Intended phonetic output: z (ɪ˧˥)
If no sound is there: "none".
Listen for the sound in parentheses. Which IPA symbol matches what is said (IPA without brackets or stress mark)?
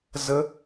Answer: ə˧˥